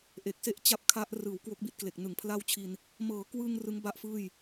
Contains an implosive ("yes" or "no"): no